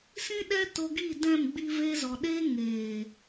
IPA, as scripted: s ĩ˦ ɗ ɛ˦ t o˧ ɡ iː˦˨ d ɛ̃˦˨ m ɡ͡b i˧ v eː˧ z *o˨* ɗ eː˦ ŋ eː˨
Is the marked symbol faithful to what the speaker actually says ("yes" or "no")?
no